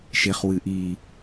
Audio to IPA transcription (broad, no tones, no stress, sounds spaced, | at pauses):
ʃ e χ w ɨ ʔ i